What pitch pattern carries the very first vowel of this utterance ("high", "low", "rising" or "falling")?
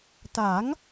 rising